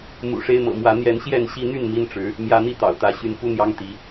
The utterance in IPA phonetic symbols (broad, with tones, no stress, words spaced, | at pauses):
mṵ˨˩ʂe˦ɪ̯mɤ̰˨˩mwä˨˦ n̪jɛ˨˦nɕjɛ˥˨nɕi˦n̪y˥˨n mi˦n ʈ͡ʂɻ̩˨˦ | mjä˨˦n̪i˥˨ t̪ɑ̰˨˩ʊ̯t̪ä˨˦ ɕy˨˦nfu˦n̪jɑ˦ŋ t̪i˨˦